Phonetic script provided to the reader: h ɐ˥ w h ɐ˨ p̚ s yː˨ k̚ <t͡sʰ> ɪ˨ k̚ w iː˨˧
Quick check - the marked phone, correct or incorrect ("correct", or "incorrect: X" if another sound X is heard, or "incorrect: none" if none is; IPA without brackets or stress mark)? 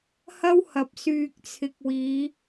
correct